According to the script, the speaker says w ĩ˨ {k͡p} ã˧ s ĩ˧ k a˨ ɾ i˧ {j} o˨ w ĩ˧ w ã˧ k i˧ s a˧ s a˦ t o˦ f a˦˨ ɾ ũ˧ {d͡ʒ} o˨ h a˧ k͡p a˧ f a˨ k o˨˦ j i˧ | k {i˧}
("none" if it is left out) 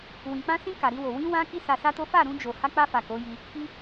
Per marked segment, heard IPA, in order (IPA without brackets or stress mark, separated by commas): k͡p, w, d͡ʒ, i˧